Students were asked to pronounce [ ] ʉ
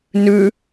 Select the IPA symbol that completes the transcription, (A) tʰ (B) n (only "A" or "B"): B